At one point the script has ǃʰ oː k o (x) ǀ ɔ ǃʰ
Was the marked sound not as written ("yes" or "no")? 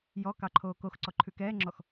no